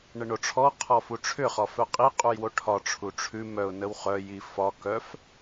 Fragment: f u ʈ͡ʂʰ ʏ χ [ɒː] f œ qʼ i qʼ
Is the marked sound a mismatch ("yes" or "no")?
yes